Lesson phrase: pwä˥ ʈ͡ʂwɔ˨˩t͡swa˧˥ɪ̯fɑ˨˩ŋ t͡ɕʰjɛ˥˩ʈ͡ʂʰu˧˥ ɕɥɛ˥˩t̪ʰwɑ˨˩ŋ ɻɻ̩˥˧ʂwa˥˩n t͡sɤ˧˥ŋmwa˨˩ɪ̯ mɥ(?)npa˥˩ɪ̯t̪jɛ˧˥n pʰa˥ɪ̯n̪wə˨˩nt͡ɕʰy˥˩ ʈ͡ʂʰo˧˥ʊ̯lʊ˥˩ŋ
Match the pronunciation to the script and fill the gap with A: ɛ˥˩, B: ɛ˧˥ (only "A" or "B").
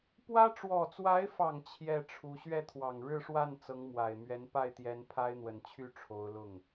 B